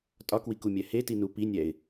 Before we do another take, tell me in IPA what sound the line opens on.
tʼ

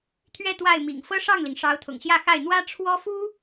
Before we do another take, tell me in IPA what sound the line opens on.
t̪ʰ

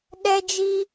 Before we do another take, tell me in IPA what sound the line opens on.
ɗ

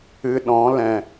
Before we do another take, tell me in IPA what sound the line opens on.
ɨ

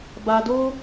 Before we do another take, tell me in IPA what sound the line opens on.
b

